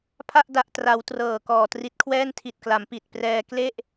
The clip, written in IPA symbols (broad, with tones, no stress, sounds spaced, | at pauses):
pʰ a˥˩ ʔ d a˨˩ ʔ t r a˩˦ w t r ɤː˨˩ k ɔː˨˩ t r i˦˥ t̚ kʰ w ɛː˥˩ n tʰ i˨˩ t̚ k l a˩˦ m p i˨˩ t̚ p r ɛː˧ k l e˥˩ ʔ